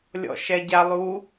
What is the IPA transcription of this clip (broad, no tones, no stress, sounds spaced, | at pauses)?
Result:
lʲ ɔ̰ ʃ ɛ ɟ a lˠ u